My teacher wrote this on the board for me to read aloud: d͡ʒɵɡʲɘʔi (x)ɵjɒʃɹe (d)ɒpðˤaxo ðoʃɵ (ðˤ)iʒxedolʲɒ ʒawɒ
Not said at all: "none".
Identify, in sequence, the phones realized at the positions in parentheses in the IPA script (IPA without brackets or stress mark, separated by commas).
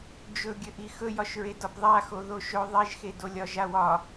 x, d, ðˤ